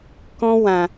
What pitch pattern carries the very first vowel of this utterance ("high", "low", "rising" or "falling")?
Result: high